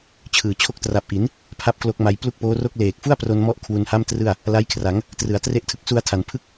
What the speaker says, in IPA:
t͡ɕʰ ɯː˨˩ t͡ɕʰ o˥˩ k̚ t r a˨˩ p̚ ʔ i˩˦ n | pʰ a˥˩ p̚ k l o˦˥ k̚ m a˧ j p l u˥˩ k̚ p oː˦˥ r o˥˩ k̚ l eː˨˩ k̚ f u˥˩ a̯ p r o˧ n m ɔ˦˥ ʔ kʰ w u˧ n h a˥˩ m t r ɯ˥˩ a̯ | l a˦˥ j kʰ r a˩˦ ŋ | t r ɯ˩˦ a̯ t r e˦˥ ʔ tʰ ɯ˦˥ k̚ s u˧ a̯ tʰ a˩˦ n pʰ ɯ˥˩ k̚

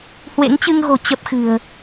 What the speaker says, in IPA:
h w ḛ˧˥ ŋ t͡ɕ ɨ˧ ŋ ɣ o̤˨˩ t͡ɕ ə˦˥ p̚ x ɨ̤˨˩ ə̯

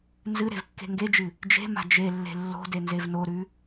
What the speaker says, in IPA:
n z ɨ ɾ e̤ v kː e̤ ŋ ɡ e d͡ʒ ɨ | d͡ʒ e̤ m a̤ d͡ʒ e lː e̤ lː o̤ d e n z e v n o ɾ ʉ

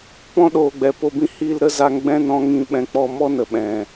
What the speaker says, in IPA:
p ɔ̃˦ ɗ oː˨ ɡ͡b ɛ˨ p o˧ b ĩ˦ h iː˧ l ɾ ə˦ z a˧ ŋ ɡ͡b ɛ̃˦ n ɔ̃˧ ŋ ĩ˧ ɓ ɛ̃˧ k͡p ɔ˧ m ɔ˦ n ə˨ ɓ ɛ̃˨

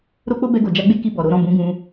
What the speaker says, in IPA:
ɾ o˦ k͡p o˦ b ɛ˧ ɡ o˨ d͡ʒ a˧ ɡ͡b e˦ k i˧ b ɔ˨ ɾ o˨˦ ɾ ɔ̃˦˨ b ũ˨˦ ɡ ũ˧

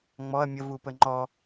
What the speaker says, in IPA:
ŋ͡m ɔ ɐ̯ mʲ ə v u p ə ŋ͡ǃ ɔ

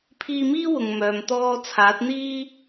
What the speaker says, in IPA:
pʰ iː˧ m iː˥ w ʊ˨ ŋ m œː˨ m t̪ ɔː˥ t͡sʰ aː˨˥ t̚ n̪ iː˥

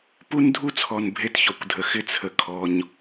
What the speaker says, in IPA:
p u˦ n dʱ u˦ t͡sʰ ɔ˨ n bʱ e˦ t ç ɔ˨ kʷ dʱ ə˨ x ɪ˦ t͡sʰ ə˨ kʰ ɔ˨ ɲ

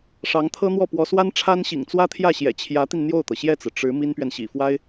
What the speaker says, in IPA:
ʂ ɑ˧˥ ŋ t̪ʰ ɤ˥ n̪ w ɔ˥˩ p w ɔ˧˥ s w a˥ n ʈ͡ʂʰ a˥ n ɕ ḭ˨˩ ŋ t͡s w ä˥ t̪ʰ j ä˥˩ ɕ j ɛ̰˨˩ t͡ɕʰ j ä˧˥ t̪ i˧ n n̪ j o˥˩ ʊ̯ t̪ ɤ˩ ɕ j ɛ˥˩ t͡s ɹ̩˩ ʈ͡ʂ ɻ̩˧˥ m i˥ n p ɥ ɛ˨ n ɕ ḭ˨˩ f w a˥ ɪ̯

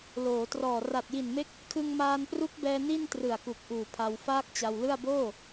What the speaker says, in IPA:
l oː˩˦ t r ɔː˨˩ r a˨˩ t̚ j i˨˩ n m e˦˥ k̚ | kʰ ɯ˧ ŋ m aː˧ n p r u˦˥ k̚ b ɛː˧ n i˥˩ n t r ɯ˨˩ a̯ k u˨˩ k̚ ʔ uː˨˩ pʰ a˧ w f aː˥˩ k̚ t͡ɕ a˧ w l ɯ˥˩ a̯ b oː˥˩

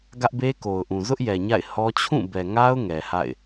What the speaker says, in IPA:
ɡ ä˦ ʔ b e˦ k o˨ ʊ̯ ʔ ũ˨ z ʊ˦ ʔ j ɛ˨ ɲ a̰˦˨ ɪ̯ h ɔ˦ t͡ɕʰ ũ˦˨ b ɛ˨ ŋ a˦ ʊ̯ ŋ ɛ˨ h a̰˦˨ ɪ̯

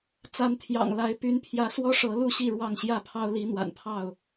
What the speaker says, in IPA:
t͡s a˨˦ n t̪ʰ j ɑ̰˨˩ ŋ l a˨˦ ɪ̯ p y˨˦ n pʰ j ä˨˦ s w ɔ˦ ʂ ɤ˨˦ l u˥˨ ɕ i˥˨ ɻ w ɑ˥˨ ŋ ɕ j ä˥˨ pʰ ɑ˦ ʊ̯ l i˨˦ n̪ w a̰˨˩ n pʰ ɑ˥˨ ʊ̯

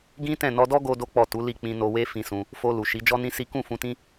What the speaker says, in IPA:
ɡ ĩ˦ t ɛ̃˦˨ n ɔ˧ d ɔ˦ ɡ o˦ d o˦ k͡p ɔ˦˨ t u˨˦ l i˦˨ k͡p ĩ˧ n o˧ w e˦ f ĩ˧ s ũ˧ | f o˧ l u˨ ʃ i˨˦ d͡ʒ ɔ˦ n ĩ˦ s i˦ k ũ˦˨ f ũ˧ t ĩ˦

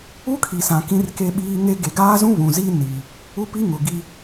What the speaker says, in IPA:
u˦ kʰ i˨ s ã˨ k ĩ˦ r k e˦ ɓ iː˦ ŋ e˦ ɡ e˨ ɡ aː˦ z ũ˦ β ũ˨ z i˦ n i˨ | u˦ p i˦ ŋ ʊ˨ ɡ i˦

